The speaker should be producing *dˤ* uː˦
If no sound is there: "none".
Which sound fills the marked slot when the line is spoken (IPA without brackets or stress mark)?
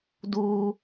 d